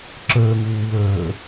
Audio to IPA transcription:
ǁ əː ŋ uː w əː

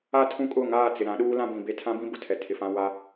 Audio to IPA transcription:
a˦ tʰ ũ˦˨ kʼ ʊ˦˨ ŋ aː˦˨ t͡s ɪ˨ ɾ ã˨˦ ɗ uː˦ l ã˦ b ĩ˨ b e˦ tʰ ã˦ b ĩ˦ b ʊ˨ tʰ ɛ˨ tʰ ɪ˨ f ã˦ w a˦

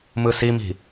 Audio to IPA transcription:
m ɯ s i m i̤

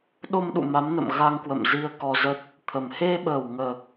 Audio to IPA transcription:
ɗ o˧ m ɗ ṵ˧˨ m a˨˦ m n ə̰˧˨ m ɣ a˧ ŋ k w ə̰˧˨ m z i˧ ə̯ k ɔ˧ z ə˦˥ t̚ | t̪ʰ ə˨˩ m h e˧ ɓ əː˨˩ w ŋ əː˨˩ k̚

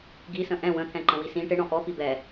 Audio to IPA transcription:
ɡ i s ə̃ ʔ ɛ̃ w ə̃ t̪ʰ ɛ̃ ǃ ə̃ w i s ĩ ʈ ɪ ɳ ɔ̃ ʔ ɔ p i b ɛ

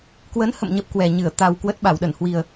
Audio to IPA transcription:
k w ə˨˦ n h ə̰˧˨ m ɲ ə˦˥ p̚ k w ɛ˨˩ ɲ ɨ˧˩ ə̯ t̪ a˨˩ w k w ə˦˥ t̚ ɓ a˧˩ w ɗ ə˧˩ n h w i˨˩ ə̯

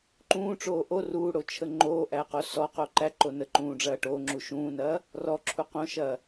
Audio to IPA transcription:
ǃ ũː ʈ͡ʂ oː ʔ o r uː ɽ o t͡ʃʰ ə ŋ͡ǃ oː ʔ æ q o s ɔ q o ǃ æ ǃ o n ə ǃ ũː ɖ͡ʐ ɐː ʈ oː ŋ͡ǁ u ʃ ũː n ɐː | r ɔ ǁʰ u q õ ʃ ɐː

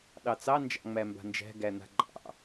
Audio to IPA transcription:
ɗ ɑ t͡s ɑ n d͡ʒ ɑ̰ ŋ͡m æ m b a̤ n d͡ʒ æ̤ ɡ æ n̪ a̤ ɡ͡ǃ ɑ̰

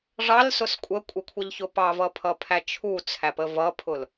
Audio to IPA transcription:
ʐ ɑ l s ʊ s kʷʼ ə kʷʼ ɪ kʷʰ ʌ ʎ ç ʊ p ɑ v ʌ pʰ ʌ pʰ æ t͡ʃʰ u t͡sʰ æ p ə v ʌ pʰ ʊ l

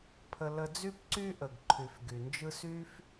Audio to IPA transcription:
pʰ ə˨ l ə˨ d͡z y˦ p ǀ y˦ ʔ ə˩ ɡ ǃʰ y˨ f ɡ y˩ n d͡ʒ ɯ˥ s y˥ f

